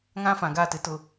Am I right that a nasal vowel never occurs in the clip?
no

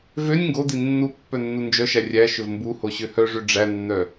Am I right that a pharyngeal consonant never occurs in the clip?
yes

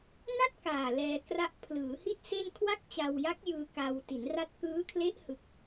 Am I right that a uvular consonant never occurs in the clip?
yes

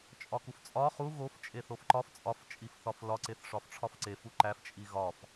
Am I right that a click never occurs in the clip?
no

